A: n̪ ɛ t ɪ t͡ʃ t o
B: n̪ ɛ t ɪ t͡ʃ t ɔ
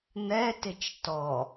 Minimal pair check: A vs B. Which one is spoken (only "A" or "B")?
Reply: B